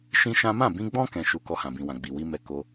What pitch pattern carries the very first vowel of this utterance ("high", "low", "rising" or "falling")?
high